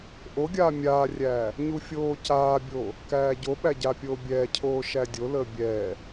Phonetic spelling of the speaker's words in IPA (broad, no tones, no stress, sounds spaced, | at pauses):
ʔ o ɡʲ aː mʲ aː rʲ æː | ɲ u fʲ oː c aː bʲ oː | k æː ɟ o ɓ æ ɟ a pʲ oː bʲ ɛː cʰ oː ʃ æ dʲ o l əː bʲ ɛː